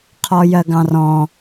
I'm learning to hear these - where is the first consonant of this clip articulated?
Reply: uvula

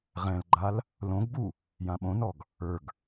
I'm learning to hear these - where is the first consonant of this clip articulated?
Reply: uvula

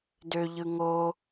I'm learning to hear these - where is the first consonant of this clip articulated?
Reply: tongue tip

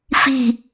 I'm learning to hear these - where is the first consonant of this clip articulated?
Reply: lips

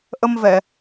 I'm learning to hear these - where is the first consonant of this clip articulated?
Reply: throat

